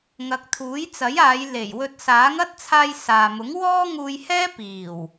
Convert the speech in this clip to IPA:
ŋ ɐ˨˥ k̚ t̪ʰ uː˨˥ j t͡s ɐ˨˥ j aː˨˧ j l e˨˩ j w ɵ˧ t̚ s aː˨˥ ŋ ɐ˥ t̚ t͡sʰ aː˧ j s aː˨ m ʊ˨˥ ŋ w ɔː˥ ŋ uː˧ j h ɛː˥ p iː˨˩ w

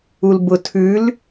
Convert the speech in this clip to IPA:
u l b ʊ tʰ ʉ l

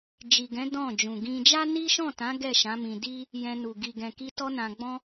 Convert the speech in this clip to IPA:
d͡ʒ i˨ ɡ ɛ̃˨˦ d ɔ̃˦˨ d͡ʒ ũ˨ ɡ ĩ˧ d͡ʒ a˦ n i˦ ʃ ɔ̃˦˨ t ã˨˦ ɡ ɛ˦˨ ʃ ã˨˦ m ĩ˧ d i˦ | j ɛ̃˧ n u˨ ɡ i˨ ɡ ɛ̃˨ k i˧ t ɔ˦ n ã˧ ɡ͡b ɔ̃˦

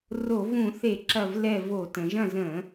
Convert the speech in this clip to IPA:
r o˧˩˧ v ũ˧˩˧ θ e˧˩˧ ǁ ɐ˦˨ v l ɛ˦˨ v o˧˩˧ t ə̃˩˧ ʒ ɐ̃˦˨ z ə̃˧˩˧

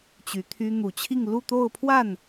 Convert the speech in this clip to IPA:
t͡ɕ y˧˥ t̪ʰ y˥ n̪ u˨˩ t͡ɕʰ i˥˧ ŋ l u˥˧ t̪ o˥˧ ʊ̯ pʰ w a˥˩ n

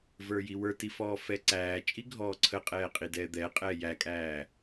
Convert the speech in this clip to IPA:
v ə˞ j i w ə˞ t i f ɔː f ɛ ǀ æː t͡ʃʼ i ɡʱ ɔː ǀʰ ə qʼ ɛː qʼ i d ɛː d̪ ɛ qʼ ɛː j æ kʼ æː

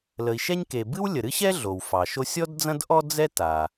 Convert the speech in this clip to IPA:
l ə˩ i̯ ʃ ɛ˥ ɲ k e˩ b ɨ˥ w lʲ ə˩ ɾ ɨ˥ ɕ ɛ˥ ɮ o˩ w f ɑ˩ ʃ o˥ sʲ ɔ˥ d d͡z ɐ̃˥ d ʔ ɔ˥ d͡z ɛ˥ t a˩

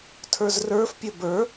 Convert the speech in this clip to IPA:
tʰ ə˞ z r ə˞ f pʲ ə b ə˞

